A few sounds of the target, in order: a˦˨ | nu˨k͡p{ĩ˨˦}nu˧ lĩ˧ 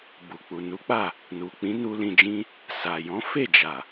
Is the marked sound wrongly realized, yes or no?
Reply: no